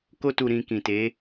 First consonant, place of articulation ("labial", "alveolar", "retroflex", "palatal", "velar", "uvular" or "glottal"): velar